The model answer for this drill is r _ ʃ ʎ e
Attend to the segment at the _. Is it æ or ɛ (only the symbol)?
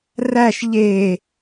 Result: æ